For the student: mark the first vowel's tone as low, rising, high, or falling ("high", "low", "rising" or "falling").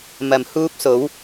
low